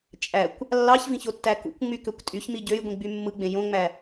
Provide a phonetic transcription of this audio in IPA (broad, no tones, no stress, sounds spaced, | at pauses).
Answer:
t͡ʃʼ æ kʷ | lː ɑ ç v ĩ ç o tː æ k ṵ kʷ ŋ͡m y k ø kʷ tʼ y ç m i ɟ ø j ɡʷ ĩ ɡ͡b y mː ɯ ɡ͡b ẽ j õ ŋ͡m æ